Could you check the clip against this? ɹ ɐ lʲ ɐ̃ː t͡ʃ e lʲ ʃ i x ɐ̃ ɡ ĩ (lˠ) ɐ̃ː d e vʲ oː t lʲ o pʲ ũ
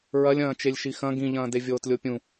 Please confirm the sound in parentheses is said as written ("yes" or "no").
no